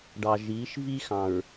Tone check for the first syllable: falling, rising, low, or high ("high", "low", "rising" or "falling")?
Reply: low